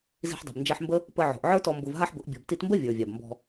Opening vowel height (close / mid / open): close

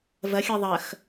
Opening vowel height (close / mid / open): open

